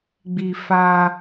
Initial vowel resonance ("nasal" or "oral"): oral